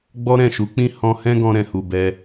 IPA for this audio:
ɡ͡bɔ˦ɾɛ̃˦˨ʃu˨˦k͡pĩ˦ hɔ̃˧hɛ̃˦ɡɔ̃˧ ɾɛ̃˨hu˨bɛ˧

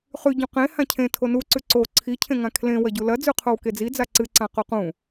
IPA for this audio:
χʉ ɟũqẽ hãcʰẽ tʰonu ǀʉǀo ǀʰi cʰẽŋãkʰlẽ wɐɟulɐ d͡zʉqʰowked͡zi d͡zaǀɨ ǀãqoqũ

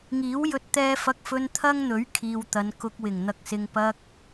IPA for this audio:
ŋiː˨˥wjɵ˧t̚ t̪ɛː˥ fɐ˧k̚fɵ˧n t̪ʰɐ˥ŋn̪ɵ˨˥ɥ kʰiː˨wt̪ɐ˨˧nkʊ˧k̚ wɪ˨˩ŋn̪ɐ˧k̚sɪ˧ŋ pɐ˧k̚

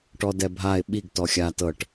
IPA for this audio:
ʈɔdɛbʱaɪ̯ ɓiɡ tɔxʲa tɤʈ

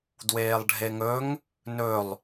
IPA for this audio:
dweːlˠɖʱeŋɵŋ | nɵlˠ

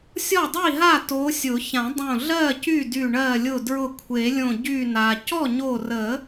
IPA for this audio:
sʲɔ˥˩dˤi˥˩ɦa˥˩ to˨˦sʲʊ˨˩˦ çã˨˩˦dˤõ˧˩ ɮɜ˥˩ cy˥˩dy˧˩ ɳɜ˧˩lʲʊ˧˩dɹʊ˧˩ kʷʰe˨˩˦lʲõ˧˩ ɟy˧˩na˩ cɔ˥˩ɲo˧˩rə˨˩˦

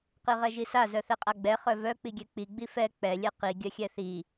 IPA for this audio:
qiʁɛʒisa zœθɛqʼaɡ͡bɛ χœvœ k͡piɡʲɛk͡pi ɡ͡bifɛ k͡pɛ lʲɛqi ɡʲœxʲɛθi

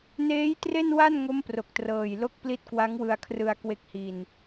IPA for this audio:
neː˦˥jtre˥˩nwa˥˩n ŋo˦˥mpro˨˩k̚trɤː˨˩jlo˦˥k̚ pli˦˥t̚kwa˦˥ŋwɯ˧a̯kʰrɯ˧a̯ kwe˦˥k̚hi˧n

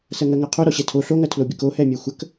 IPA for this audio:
sɜŋɜŋɜqʰo ɾɔɕɛtʰo ɬoŋɜtʰlobʲək ohɛmʲɛ xʷək

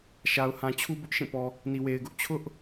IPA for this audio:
ʃa˨ʊ̯hã˨t͡ɕʰu˦ bʊ˦ʔʃĩ˦˨pɔ˨ | ni˨we˨ɪ̯ɡʊ˦ʔ t͡ɕʰʊ˦ʔ

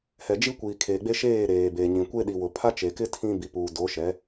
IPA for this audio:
hɛ˨d͡ʒi˦ kʷiː˨kʰeː˨ɡ͡be˦ʃeː˦˨ ɾeː˨be˨ɲĩ˨ kʷe˦ɗi˨wʊ˨ pʰa˦t͡ʃe˨kɪ˦ tʰĩ˦bi˨puː˨ do˨˦ʃɛ˨˦

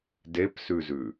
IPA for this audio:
depsʉzʉ

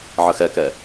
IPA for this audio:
ʕəxɛkɛ

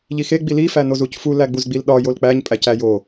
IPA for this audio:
ʎixe ɡ͡bilifæ nozucfu læɡ͡buzɡ͡bilɗɒ jolk͡pæɲ pʼæcæjo

